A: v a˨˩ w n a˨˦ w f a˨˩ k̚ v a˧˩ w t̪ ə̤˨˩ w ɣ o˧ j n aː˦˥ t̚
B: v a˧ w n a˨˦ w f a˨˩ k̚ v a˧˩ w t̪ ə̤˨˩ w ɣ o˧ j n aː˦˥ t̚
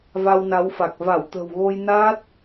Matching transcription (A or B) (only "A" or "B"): B